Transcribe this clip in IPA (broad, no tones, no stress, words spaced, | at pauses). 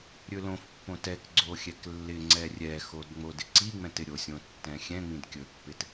ɾʲɵlõfpːõ tɛk ɡ͡ǀoxʲɛklːɪŋ͡ǀɛ rʲɛxod ŋ͡modɪǀiŋ͡mɛ̃t ɪɾʲosʲõ tːɛ̃xʲɛ̃ŋ͡mĩd kʲɵpːɪt